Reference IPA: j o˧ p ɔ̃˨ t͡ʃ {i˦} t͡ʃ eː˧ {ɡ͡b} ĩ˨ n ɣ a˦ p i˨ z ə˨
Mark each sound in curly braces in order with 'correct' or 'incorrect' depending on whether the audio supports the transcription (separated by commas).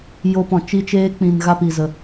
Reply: incorrect, incorrect